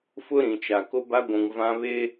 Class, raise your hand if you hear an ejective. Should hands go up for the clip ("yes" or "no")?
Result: no